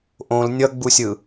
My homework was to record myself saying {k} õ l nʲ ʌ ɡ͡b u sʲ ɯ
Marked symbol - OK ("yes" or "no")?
no